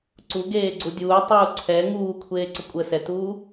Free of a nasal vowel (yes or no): yes